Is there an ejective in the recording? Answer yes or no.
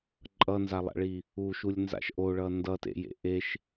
yes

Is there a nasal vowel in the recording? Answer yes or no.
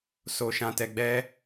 yes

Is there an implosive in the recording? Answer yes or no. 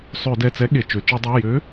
yes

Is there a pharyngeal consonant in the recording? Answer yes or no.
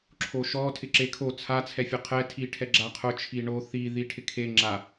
no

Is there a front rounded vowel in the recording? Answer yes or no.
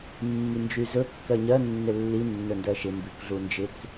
yes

